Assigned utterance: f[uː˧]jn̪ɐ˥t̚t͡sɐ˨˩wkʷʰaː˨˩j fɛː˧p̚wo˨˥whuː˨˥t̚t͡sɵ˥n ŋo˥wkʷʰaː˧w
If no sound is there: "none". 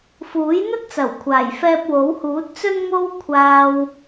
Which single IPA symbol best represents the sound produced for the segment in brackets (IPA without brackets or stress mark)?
uː˨˥